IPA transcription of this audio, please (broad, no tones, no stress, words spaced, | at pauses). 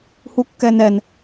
hukːɛnɛn